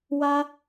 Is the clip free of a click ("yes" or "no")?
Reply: yes